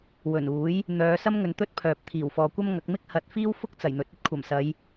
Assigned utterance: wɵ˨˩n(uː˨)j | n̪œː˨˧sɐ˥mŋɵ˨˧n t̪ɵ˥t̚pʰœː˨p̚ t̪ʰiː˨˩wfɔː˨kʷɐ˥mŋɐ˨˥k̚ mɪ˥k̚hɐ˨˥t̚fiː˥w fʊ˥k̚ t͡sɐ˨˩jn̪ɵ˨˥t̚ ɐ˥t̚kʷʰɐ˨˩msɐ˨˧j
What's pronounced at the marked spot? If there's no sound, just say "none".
uː˨˥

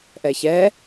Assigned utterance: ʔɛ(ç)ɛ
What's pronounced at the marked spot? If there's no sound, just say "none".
ç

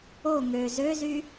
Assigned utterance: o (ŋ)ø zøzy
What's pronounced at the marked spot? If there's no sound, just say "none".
ŋ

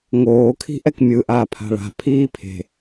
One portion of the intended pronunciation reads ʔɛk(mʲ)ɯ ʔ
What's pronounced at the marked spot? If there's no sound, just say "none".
mʲ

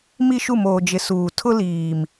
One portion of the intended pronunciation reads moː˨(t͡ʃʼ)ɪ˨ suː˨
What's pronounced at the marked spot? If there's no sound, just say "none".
d͡ʒ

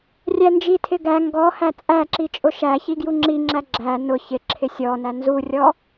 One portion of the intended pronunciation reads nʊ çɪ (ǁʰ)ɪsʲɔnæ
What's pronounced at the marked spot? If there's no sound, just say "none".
ǁʰ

